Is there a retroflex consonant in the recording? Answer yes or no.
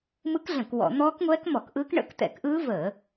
yes